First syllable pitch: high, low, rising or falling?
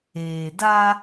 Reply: low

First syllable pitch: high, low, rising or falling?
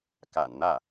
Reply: low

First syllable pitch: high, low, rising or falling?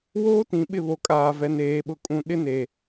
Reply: high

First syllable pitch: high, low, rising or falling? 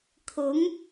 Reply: rising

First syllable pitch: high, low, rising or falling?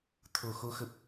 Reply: low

